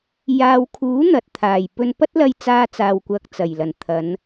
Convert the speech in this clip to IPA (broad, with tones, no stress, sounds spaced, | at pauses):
j aː˨ w kʰ uː˨˥ n̪ ɐ˨ t̚ t̪ʰ aː˨˩ j p ɵ˧ n p ɐ˥ t̚ l ɐ˧ j t͡s aː˥ t͡s aː˧ w kʷ ɐ˧ k̚ t͡s ɐ˨˩ j l ɐ˨˩ n t̪ʰ ɐ˨˧ n